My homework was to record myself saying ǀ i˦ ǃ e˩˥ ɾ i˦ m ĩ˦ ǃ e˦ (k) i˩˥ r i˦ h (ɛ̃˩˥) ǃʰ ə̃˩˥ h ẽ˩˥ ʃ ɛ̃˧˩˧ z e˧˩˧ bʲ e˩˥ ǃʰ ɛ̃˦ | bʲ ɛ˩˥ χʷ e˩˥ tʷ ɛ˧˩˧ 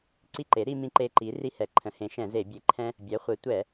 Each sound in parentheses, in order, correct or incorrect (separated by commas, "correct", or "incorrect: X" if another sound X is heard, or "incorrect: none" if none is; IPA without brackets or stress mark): incorrect: ǃ, incorrect: ɛ˩˥